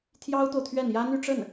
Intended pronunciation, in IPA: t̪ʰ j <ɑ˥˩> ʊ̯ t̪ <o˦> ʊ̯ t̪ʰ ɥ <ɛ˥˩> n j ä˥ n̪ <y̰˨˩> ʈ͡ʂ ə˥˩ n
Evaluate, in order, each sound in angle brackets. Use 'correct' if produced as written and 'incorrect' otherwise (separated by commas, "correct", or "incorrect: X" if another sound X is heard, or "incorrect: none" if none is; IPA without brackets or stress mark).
incorrect: ɑ˥, incorrect: o˨, correct, incorrect: y˥˧